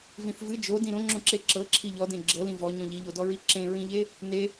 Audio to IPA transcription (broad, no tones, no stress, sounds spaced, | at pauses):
v ĩ θ v ɨ d͡ʒ o d ĩ ɾ õ ŋ͡ǁ õ ǁ e ǁ ɤ ǁʰ i ʎ ɔ d ẽ ɡ͡ǁ ɤ l ĩ v ɔ ɲ ɔ̃ ʎ i ʎ o d ɔ ɹ i ǁ ẽ ɹ ĩ ʎ e | n e